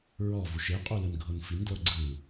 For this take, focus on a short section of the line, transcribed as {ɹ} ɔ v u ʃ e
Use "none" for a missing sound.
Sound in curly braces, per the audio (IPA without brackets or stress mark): ɹ